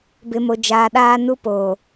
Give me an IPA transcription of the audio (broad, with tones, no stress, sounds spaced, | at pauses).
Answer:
b ɪ˨ m o˨ d͡ʒ aː˨ ɗ aː˦ n u˦ p oː˨